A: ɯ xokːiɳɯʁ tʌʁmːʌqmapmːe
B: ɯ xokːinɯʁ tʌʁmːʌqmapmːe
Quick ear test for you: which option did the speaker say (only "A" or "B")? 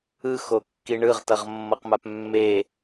A